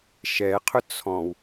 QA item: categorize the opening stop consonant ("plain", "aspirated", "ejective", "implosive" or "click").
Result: aspirated